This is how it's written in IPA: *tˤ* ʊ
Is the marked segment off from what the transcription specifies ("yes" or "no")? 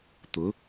yes